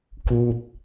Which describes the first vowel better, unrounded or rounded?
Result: rounded